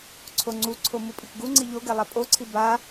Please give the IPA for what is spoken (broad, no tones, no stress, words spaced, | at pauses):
ǀʰoŋ͡ǀuǀʰo mupʼikɡuŋ͡ǀi ʎoɡɛ lˠapʼoǀʰi ba